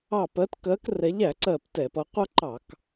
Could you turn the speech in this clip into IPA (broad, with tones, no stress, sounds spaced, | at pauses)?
ɑ˧˩ p ɜ˨˦ t k ɜ˨˦ k r ɛ˨˦ ʎ æ˧˩˧ ǀ ɜ˧˩ p t ɛ˧˩˧ p ʌ˨˦ qʷ ʌ˦ ǃ ɑ˧˩˧ k